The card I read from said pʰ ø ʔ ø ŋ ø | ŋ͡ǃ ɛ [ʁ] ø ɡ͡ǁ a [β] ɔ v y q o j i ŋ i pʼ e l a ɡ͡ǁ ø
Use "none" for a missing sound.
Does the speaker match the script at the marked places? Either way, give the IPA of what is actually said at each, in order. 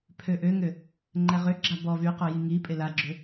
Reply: ʁ, b

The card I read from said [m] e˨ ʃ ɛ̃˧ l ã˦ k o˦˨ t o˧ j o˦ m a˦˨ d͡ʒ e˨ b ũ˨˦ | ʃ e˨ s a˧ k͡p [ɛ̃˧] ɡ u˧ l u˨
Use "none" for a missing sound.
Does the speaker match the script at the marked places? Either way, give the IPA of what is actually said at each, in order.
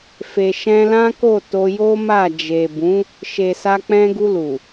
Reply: f, ɛ̃˧

